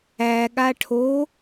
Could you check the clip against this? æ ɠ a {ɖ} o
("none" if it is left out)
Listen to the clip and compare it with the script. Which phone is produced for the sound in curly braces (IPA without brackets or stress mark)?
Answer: ʈʰ